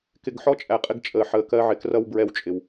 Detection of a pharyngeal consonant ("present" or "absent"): present